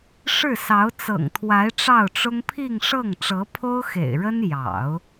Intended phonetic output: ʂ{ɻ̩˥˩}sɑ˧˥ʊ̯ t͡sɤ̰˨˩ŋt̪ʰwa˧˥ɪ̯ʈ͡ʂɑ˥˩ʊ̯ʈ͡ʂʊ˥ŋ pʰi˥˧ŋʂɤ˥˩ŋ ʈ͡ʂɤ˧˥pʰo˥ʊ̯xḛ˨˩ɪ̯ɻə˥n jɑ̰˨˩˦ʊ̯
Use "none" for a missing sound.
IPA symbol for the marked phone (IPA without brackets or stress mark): ɻ̩˥˩